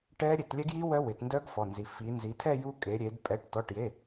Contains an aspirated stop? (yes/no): yes